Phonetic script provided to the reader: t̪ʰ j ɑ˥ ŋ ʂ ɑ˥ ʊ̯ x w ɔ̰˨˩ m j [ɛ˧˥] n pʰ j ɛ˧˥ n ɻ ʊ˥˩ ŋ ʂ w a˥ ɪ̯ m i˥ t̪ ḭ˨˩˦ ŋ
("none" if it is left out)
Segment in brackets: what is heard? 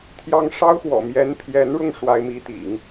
ɛ˧˥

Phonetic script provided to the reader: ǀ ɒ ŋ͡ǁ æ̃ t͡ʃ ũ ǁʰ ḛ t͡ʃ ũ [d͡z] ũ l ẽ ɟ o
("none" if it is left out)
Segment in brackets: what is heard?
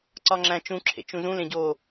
z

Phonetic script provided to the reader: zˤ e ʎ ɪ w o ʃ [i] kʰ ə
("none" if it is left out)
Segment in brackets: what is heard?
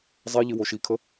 i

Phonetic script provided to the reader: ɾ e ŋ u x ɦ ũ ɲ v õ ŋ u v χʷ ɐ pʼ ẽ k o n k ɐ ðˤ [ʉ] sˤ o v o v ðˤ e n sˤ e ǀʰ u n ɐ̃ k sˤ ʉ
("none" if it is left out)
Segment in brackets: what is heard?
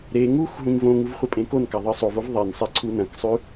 ɨ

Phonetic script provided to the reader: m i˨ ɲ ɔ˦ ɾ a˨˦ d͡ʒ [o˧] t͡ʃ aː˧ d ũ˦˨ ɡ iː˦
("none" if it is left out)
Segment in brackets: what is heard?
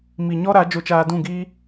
o˧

